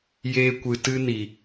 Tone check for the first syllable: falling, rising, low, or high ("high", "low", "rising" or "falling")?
high